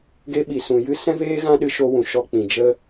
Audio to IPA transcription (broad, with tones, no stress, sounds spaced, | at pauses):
ɡ e˧ ɓ i˨ s ũ˨ j ɨ˧ s ɛ̃˦ v eː˦ ɣ ã˦ ɗ ɨ˧ ʃ o˧ w ũ˨ ʃ ɔ˧ k͡p ĩ˨ d͡ʒ ə˧